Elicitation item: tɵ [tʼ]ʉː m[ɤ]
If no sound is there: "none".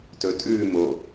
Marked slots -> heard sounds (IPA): tʼ, o

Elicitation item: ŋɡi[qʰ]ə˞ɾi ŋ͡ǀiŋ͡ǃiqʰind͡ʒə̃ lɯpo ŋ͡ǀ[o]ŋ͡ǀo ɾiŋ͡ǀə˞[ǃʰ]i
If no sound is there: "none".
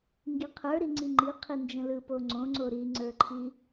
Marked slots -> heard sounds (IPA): qʰ, õ, ǃʰ

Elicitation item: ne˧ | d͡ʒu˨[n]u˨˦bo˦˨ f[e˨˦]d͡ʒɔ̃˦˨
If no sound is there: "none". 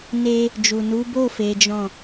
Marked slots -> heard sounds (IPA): n, e˨˦

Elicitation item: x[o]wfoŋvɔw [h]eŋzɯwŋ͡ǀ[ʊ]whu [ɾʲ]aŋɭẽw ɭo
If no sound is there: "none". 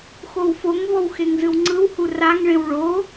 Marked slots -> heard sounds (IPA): o, x, ɯ, r

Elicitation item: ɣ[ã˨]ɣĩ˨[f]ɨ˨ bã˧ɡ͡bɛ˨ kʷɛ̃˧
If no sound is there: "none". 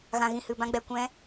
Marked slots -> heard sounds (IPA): ã˨, h

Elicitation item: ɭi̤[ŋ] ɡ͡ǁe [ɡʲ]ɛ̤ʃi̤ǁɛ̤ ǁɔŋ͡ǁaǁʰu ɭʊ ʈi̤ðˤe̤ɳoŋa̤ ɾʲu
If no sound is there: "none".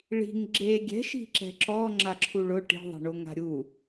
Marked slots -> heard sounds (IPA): ŋ, ɡʲ

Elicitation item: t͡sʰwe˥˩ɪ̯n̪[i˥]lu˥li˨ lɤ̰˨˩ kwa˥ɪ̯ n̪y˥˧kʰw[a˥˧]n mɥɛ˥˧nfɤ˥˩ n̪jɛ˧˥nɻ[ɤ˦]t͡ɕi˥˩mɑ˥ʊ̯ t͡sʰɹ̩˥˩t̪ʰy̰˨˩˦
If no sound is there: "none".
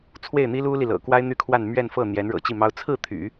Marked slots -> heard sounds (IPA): i˥, a˥˧, ɤ̰˨˩

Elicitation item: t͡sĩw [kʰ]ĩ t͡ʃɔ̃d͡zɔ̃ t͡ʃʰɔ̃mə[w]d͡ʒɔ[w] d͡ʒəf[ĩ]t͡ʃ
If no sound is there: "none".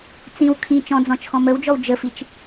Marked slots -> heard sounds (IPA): kʰ, w, w, i

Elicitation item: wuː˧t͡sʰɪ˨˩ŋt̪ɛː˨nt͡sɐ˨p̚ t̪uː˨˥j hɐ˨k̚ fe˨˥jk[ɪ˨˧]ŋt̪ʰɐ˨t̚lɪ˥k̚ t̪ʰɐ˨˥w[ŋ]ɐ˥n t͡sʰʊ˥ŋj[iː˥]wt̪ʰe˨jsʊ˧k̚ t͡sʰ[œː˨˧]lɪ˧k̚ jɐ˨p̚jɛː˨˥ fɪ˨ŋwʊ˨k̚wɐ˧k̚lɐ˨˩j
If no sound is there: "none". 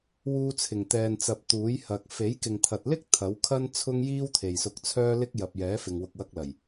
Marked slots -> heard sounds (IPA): ɪ˨, kʰ, iː˥, œː˧

